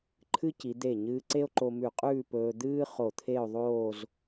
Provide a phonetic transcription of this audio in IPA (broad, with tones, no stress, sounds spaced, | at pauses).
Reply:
ǃʰ ɨ˥ c i˩˧ d̪ e˧˩ ɲ ɨː˧ ǀ e˥ o̯ ǃ o˧ m ʉ˧˩ qʼ ʉː˥˧ p ɵː˧ d̪ ɨː˥ χ o˧˩ t̪ʰ e˥˧ o̯ ðˤ oː˥˧ z